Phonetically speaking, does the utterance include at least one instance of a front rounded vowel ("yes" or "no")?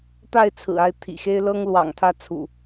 no